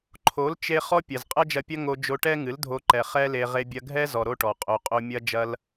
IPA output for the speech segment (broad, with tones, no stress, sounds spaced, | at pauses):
ǃʰ o˨˦ l t͡ʃ e˧ χ ɔ˦ pʲ ɐ˨ z qʼ ɐ˦ d͡ʒ ɐ˧ pʲ ɐ˦ ŋ o˧ d͡ʒ o˧ ʈ ɛ˦ ŋ ɨ˨˦ l dʱ o˧ ǃ ɛ˨ χ ɛ˦ l e˧ ʁ e˧ bʲ ɐ˧ ɡʱ ɛ˦ z ɔ˨ ɾ o˦ ʈ ɔ˨ qʼ o˧ qʼ o˧ mʲ ɐ˦ d͡ʒ ɐ˦ l